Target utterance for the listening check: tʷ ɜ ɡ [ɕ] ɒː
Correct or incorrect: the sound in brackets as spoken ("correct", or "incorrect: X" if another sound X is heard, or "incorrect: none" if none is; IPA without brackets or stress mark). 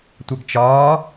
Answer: incorrect: t͡ʃ